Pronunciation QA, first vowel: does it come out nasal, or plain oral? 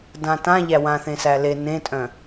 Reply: nasal